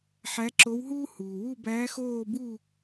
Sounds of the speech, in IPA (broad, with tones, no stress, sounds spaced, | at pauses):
ħ æ˧˥ ǁ o˧˥ w ɦ uː˥ h uː˩ w u˥˨ b æː˧˥ x oː˥˨ b u˥˨